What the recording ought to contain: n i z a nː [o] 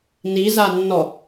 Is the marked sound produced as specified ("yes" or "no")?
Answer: no